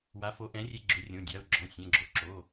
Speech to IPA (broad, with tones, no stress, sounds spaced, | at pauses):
w a˨˥ f o˨˥ ʔ ɛ̃˨˥ rʲ e˧ ɡ͡ǁ ʏ˨˥ rʲ õ˩˧˩ dʲ a˩˧˩ ʊ̯ ɡ͡ǁ ɔ̃˩˧˩ sʲ ɛ̃˩˧˩ ɡ͡ǁ o˧ ǁ o˩˧˩